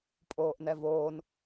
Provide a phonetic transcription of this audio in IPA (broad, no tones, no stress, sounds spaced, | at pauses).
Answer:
pʼ oː ʔ n ɛ v oː n